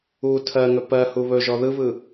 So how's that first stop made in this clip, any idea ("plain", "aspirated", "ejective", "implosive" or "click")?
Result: aspirated